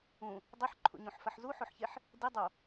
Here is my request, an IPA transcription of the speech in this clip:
ũ | dˤ i ħ ǃʰ ṵ ɲ ũ ħ f ɐ ħ z u ħ o ħ ç e ħ | d i dˤ o

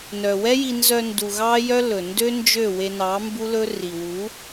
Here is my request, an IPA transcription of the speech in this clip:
n œ˨ w ɛ˦ j i˧ n z œ˧ n d u˨ ɣ ɑ˦ j œ˦ l ɵ˨ n d ø˦ n d͡ʒ ø˦˨ w e˧ n ɑ˨˦ m b u˦ l ɵ˦ r i˨ w u˨˦

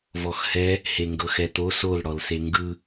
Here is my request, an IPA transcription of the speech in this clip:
v ɔ x h ɛ | h e ŋ ɡ ɤ x ɛ t̪ o s o l ɽ ɔ l s e ŋ ɡ ɯ

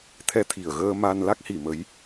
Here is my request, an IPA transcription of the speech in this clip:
t̪ʰ ɛ˧ t̪ʰ i˧˩ ə̯ ɣ əː˧ m a˧ n l a˦˥ k̚ h i˧˩ m ə˨˦ j

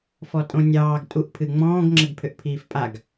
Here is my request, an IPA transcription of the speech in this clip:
f ɔ tʼ õ nʲ ɑː ɡ tʼ u ʔ pʰ ɨ ŋ͡m ɔ̃ː ɡ ŋ͡ǁ ə ɡ pʰ ʏ ʔ pʰ iː f pʼ a ɡ

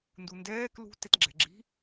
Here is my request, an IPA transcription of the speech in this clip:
n d u n d ɛː k l ṳ t ɛ t ɡ͡ǁ ɛ̤ ɡ͡ǁ i̤

